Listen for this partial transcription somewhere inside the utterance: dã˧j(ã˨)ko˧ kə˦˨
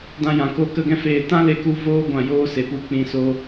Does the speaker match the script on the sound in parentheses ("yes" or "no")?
yes